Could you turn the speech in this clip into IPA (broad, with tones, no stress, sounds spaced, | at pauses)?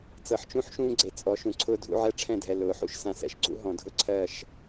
t͡s ɤ˨ ħ t͡ʃ ũ˦ ħ ʃ ũː˦ ɡ͡ǀ e˨ t͡sʼ ɔ˨˦ ʃ ũ˨ ǀʰ ʊː˦ dʱ ṵ˦ ʕ ɛ˦ ʈ͡ʂʰ ɛ̃˦˨ dʱ ɛ˨ l ʊː˨˦ ħ ṵ˦ ʃ s ã˨ s ɛ̰˨ ʃ ɡ͡ǀ ṵ˦ ɦ ɔ̃˨ dʱ ʊ˦ ǀʰ ɜ˦˨ ʃ